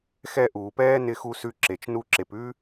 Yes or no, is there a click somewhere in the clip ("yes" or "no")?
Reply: yes